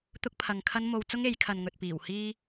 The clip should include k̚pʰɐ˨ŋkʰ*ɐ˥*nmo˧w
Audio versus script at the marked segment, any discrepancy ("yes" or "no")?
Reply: no